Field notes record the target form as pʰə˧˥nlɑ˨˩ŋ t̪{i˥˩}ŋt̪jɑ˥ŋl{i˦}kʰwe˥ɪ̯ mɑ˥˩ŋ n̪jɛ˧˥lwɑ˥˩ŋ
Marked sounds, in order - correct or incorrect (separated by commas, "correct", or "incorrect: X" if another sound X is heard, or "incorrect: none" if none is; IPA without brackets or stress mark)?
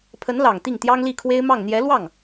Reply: correct, incorrect: i˥˩